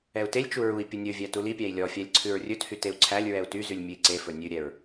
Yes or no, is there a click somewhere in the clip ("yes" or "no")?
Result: yes